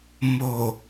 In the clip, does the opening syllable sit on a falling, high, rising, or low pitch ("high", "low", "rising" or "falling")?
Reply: low